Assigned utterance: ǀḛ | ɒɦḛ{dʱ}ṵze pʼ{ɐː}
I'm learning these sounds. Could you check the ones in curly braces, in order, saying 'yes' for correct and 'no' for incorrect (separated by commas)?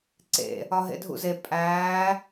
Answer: yes, no